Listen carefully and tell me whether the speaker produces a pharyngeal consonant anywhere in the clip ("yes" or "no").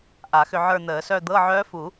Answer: yes